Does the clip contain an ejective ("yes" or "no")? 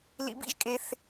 yes